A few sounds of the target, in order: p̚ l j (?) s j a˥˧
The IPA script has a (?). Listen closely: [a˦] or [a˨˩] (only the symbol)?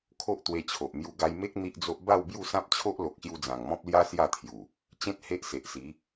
a˦